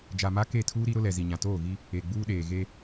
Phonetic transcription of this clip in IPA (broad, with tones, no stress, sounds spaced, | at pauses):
d͡ʒ a˨ m a˦ k e˦˨ tʰ uː˦ ɾ i˦ ɾ ʊ˦ l ɛ˨ z i˨ ɲ ã˨ t oː˦˨ ɣ i˦ | e˨ ɡ͡b uː˦ ɗ eː˨ ɣ e˦